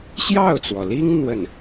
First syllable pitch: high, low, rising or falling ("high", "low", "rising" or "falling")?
falling